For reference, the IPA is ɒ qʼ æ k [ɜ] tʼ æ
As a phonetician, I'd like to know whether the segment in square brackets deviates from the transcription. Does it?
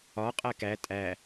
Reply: yes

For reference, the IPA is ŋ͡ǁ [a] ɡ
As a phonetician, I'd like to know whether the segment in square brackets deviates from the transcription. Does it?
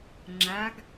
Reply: no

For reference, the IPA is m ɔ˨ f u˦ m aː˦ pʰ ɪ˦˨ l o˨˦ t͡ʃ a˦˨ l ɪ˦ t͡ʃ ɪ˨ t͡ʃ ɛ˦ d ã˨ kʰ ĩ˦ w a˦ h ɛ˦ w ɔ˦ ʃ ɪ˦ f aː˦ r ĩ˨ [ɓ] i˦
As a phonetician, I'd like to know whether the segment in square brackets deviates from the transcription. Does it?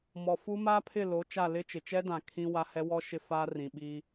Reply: no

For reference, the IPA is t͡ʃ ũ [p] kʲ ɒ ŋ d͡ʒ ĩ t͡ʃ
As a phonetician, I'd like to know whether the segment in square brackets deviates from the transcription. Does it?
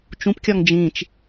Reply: no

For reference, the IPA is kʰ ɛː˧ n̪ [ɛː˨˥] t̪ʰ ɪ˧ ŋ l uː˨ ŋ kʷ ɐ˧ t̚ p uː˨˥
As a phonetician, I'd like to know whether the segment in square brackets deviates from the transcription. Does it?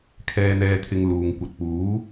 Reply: yes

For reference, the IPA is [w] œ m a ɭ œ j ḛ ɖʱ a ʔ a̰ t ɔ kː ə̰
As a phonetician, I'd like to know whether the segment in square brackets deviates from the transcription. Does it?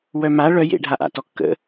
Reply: no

